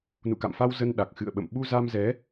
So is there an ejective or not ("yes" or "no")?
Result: no